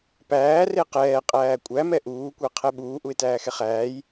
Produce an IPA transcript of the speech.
p æː r e q ɛː qʼ æː kʷʼ æ m ɛ ʔ uː kʷ ɛ qʰ ɛ ɓ uː ʔ u ɪ̯ t æː x ɛ χ æː j

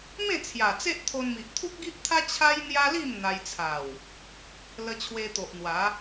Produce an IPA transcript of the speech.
m ẽ˥˧ t͡sʰ j a˨˩ t͡s e˦ ʔ t̪ʰ o˧ n m i˨ ʔ t̪ʰ u˦ k̚ ɡ i˦ ʔ t̪ʰ a˦ t͡ɕʰ a˦ j n̪ j a˦ l i˥˧ m n̪ a˧ j t͡sʰ a˨˩ w | l ə˧ t͡ɕʰ w e˧ t̪ o˨ ʔ n̪ w a˨˦

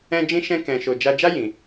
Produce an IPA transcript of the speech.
ɛ̃˦ d͡ʒ ĩ˦ ʃ ɛ̃˦ k ɛ̃˧ ʃ o˧ d͡ʒ a˧ d͡ʒ a˦ j ĩ˧

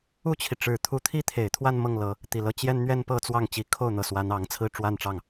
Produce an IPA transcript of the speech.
u˥˩ t͡ɕʰ i˩ ʈ͡ʂ ɻ̩˨˩ t̪ʰ u˧˥ t̪ʰ i˥ t̪ʰ e˨˩ ɪ̯ t̪ʰ w a˥˧ n m ɤ˥˩ ŋ l ɤ˧˥ | t̪ i˨˩ l ɤ˧˥ t͡ɕ j ɛ˥ n n̪ ɥ ɛ˥ n p ɤ˥ t͡s w ɑ˥˩ ŋ t͡ɕ i˧˥ kʰ o˥˩ ʊ̯ n̪ ɤ˨˩ s w a˧˥ n ɑ˧˥ ŋ t͡sʰ ɹ̩˥ ʈ͡ʂ w a˥˧ n ʈ͡ʂ ɑ˥˩ ŋ

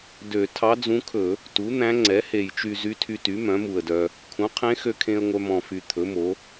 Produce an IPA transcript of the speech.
d ø˧˩˧ tʰ ɑ˧˥ d͡z ũ˧˥ kʰ ɵ˧˩˧ | t u˩˥ n̪ æ̃˧˥ ŋ͡ǀ ɛ˩˥ h e˨˩ j t͡ʃ y˧ z y˧˥ tʰ y˧ t y˩˥ m œ̃˩˥ m u˨˩ ə̯ d œ˧ | kʰ ũ˩˥ qʰ ẽ˧˥ x ø˧ kʰ ẽ˧ ə̯ ŋʷ œ˧ m ɔ̃˨˩ f y˨˩ t̪ʰ ɵ˩˥ m o˩˥

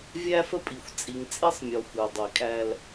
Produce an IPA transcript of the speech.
vʲ æ˦ f ə˦ pʼ i˨ xʷ t͡sʼ i˨ ŋ t͡sʼ i˦ sˤ mʲ ɔ˨ xʷ ə˞˨ dˤ i˨ kʼ æ˦ l

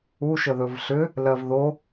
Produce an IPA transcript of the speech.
u ʃ ə ð ɵ v ɬ ʏ | l ɜ v ð o

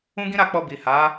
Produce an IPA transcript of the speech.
ũ˦ ɡ ĩ˦ ɾ a˦˨ k͡p ɔ˧ b i˨ h a˨˦

